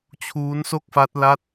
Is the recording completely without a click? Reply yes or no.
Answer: yes